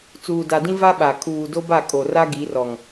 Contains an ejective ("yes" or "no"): yes